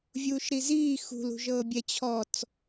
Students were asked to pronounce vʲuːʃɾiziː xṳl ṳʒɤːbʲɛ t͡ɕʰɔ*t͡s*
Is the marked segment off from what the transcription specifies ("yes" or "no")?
no